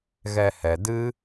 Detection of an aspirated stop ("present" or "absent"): absent